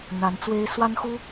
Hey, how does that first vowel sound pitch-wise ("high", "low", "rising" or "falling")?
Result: rising